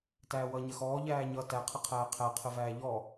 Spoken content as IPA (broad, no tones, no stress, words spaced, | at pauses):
tæːwʌːɲɜxɔː ʎæːɲʌ tæ qʰəqʰæːqʰæ qʰəvæːʎɔ